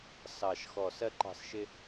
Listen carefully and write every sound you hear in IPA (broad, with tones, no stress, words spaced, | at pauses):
sɑ˨˩ʃxɔ˨˩ sɜ˥ǃɑ̤˦˨sʃɪ˥